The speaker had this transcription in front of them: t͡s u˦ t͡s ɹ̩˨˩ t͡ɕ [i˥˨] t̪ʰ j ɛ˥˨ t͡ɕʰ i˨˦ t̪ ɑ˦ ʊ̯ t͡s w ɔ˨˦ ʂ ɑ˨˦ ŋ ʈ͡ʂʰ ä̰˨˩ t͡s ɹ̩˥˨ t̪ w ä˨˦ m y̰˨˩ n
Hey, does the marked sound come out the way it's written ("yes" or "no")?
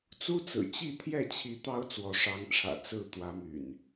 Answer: yes